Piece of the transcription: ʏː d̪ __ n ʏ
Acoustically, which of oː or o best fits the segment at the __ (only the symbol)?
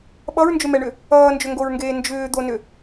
o